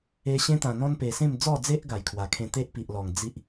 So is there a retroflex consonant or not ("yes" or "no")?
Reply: no